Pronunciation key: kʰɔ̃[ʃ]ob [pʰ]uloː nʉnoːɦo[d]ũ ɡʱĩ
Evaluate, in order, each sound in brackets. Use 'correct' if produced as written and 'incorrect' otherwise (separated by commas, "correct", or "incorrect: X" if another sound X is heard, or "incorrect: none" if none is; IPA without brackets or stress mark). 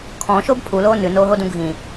correct, correct, correct